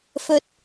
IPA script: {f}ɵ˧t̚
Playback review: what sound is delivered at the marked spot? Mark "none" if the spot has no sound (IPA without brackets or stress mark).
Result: f